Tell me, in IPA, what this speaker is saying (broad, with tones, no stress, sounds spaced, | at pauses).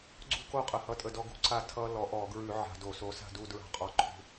ɡ͡ǀ ṳ˦ k o˦˨ qʼ ə˧˩˧ h ʌ˦˨ tʼ ə˦˨ d ɔ˦ ɡ ṳ˨˦ ǀ a˦˨ tʰ ʌ˦ l ɔ˨˦ ʔ ɔ˧˩˧ ɡ ɹ ʉ˧˩˧ ʕ a̤˧˩˧ d o˧˩˧ s o˨˦ s a̤˦˨ d u˦˨ d ɹ a̤˦˨ qʼ ɔ˨˦ ǃʰ ṳ˨˦